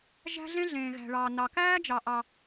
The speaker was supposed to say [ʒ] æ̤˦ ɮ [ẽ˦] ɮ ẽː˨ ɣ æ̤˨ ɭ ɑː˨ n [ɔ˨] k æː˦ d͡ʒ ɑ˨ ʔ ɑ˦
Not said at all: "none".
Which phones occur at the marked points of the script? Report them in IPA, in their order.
ʒ, ẽ˦, ɑ˨

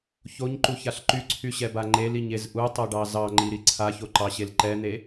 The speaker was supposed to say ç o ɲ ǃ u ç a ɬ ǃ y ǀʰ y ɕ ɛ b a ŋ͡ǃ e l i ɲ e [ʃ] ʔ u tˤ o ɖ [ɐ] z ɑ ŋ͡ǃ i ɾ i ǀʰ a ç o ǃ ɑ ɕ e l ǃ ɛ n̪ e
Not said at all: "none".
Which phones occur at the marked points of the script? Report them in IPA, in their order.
z, ɑ

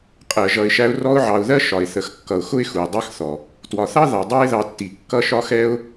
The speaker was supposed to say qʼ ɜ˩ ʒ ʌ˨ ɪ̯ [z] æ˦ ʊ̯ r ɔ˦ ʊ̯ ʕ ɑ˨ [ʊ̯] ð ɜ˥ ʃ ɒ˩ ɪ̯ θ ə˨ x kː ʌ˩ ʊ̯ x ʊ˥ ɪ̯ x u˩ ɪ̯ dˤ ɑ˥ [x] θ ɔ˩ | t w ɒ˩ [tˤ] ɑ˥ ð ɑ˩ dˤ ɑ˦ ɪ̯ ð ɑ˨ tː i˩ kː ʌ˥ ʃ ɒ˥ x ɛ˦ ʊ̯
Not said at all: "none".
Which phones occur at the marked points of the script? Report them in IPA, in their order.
ʃ, ʊ̯, x, θ

